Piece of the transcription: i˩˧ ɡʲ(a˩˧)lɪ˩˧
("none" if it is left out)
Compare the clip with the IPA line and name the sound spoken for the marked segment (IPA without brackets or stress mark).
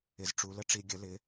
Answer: ə˩˧